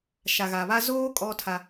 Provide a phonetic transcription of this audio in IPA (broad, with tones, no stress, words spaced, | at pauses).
ʃa˨ɣa˨βa˦ zoː˦ kʼɔ˦tʰa˦